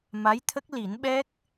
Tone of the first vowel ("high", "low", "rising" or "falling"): rising